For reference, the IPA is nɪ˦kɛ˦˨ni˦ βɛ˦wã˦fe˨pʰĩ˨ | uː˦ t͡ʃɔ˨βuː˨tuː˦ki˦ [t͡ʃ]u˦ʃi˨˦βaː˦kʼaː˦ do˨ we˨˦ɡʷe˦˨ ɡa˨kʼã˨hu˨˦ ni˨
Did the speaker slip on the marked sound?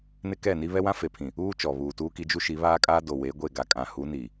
yes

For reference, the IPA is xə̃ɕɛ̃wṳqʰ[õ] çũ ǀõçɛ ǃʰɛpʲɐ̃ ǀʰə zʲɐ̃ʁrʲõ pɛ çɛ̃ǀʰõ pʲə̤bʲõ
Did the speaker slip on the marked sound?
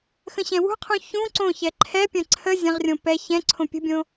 yes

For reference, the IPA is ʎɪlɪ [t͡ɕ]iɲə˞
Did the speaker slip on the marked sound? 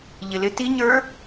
yes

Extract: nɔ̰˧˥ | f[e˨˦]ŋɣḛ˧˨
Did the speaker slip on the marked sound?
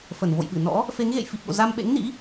no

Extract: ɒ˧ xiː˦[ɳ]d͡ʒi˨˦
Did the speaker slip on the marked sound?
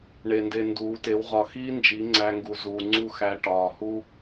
yes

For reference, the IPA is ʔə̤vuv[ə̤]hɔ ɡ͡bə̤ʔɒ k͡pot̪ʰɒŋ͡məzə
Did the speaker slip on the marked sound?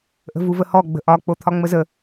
yes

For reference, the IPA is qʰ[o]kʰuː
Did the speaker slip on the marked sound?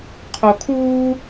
no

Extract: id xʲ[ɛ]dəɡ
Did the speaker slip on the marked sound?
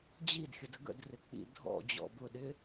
yes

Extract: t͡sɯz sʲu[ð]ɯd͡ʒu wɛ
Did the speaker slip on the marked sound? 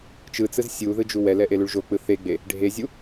no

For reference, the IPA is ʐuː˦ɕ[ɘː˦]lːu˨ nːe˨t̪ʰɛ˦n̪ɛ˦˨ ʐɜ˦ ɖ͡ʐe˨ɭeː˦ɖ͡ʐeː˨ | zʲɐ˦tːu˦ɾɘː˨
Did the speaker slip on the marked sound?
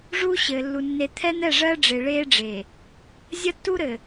yes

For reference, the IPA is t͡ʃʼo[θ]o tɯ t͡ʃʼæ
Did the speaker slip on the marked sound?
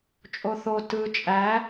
no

